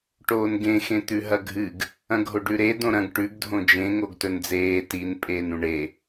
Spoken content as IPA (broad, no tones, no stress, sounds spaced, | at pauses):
ʈ oː n ɡ ẽ x ẽ t̪ ʉ ɦ ɐ ɡʱ ɨ ɡ | ɐ̃ ɡʱ o ɖ ʉ ɾ e d õ ɾ ɐ̃ ɡ ʈ ʉ ɡ dʱ õ d͡ʒ ẽ ŋ o ɡ t ɵ n d͡z eː t i n pʼ eː n ũ ɳ e